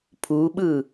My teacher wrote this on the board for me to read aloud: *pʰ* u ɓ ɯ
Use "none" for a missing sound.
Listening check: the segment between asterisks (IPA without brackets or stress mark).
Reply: pʰ